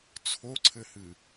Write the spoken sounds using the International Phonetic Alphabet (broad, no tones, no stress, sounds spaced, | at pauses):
t͡sʰ o ǀʰ ɘ h ɨ